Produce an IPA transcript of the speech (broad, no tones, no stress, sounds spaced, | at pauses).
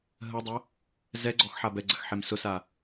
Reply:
ɦ ɜ dˤ ɐ | z ɛ ɡ͡ǀ ɔ x ħ a b ɛ ɡ͡ǀ ɐ x ħ e m s ʊ s a